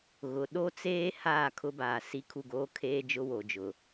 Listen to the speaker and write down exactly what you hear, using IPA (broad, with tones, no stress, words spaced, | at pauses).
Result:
ɣʊ˨ ɗo˦t͡seː˦ haː˦˨kʰʊ˦baː˨ si˦kʰu˦˨ɡoː˦ kʰeː˦d͡ʒʊ˦wo˨d͡ʒʊ˨